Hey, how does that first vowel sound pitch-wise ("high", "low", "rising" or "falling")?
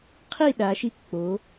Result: falling